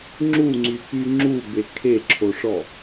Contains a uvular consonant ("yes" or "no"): no